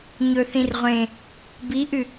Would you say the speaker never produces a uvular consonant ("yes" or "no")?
no